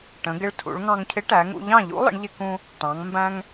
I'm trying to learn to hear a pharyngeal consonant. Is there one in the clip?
no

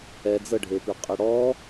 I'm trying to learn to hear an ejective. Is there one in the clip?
yes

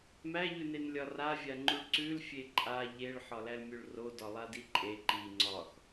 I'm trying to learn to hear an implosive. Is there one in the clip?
no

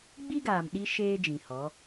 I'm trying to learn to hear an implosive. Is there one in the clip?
yes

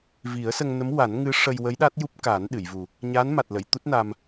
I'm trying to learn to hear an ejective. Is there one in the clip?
no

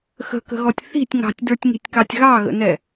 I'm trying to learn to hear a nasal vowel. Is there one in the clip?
no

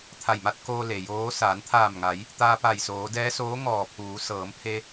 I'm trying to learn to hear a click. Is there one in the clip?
no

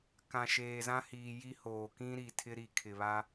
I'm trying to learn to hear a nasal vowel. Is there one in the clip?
yes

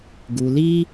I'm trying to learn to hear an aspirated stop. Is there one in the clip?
no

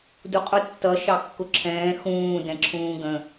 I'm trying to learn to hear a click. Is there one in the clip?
yes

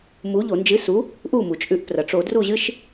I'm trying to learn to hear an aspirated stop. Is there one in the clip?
no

